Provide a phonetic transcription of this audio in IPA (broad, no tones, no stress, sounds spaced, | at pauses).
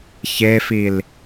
ç e f i l